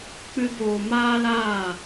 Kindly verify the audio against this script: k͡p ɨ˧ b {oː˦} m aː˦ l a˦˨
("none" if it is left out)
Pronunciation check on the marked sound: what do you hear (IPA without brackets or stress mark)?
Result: oː˨